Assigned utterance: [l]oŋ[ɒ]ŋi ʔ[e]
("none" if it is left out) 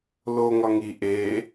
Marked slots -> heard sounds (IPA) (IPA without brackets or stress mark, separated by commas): l, ɒ, e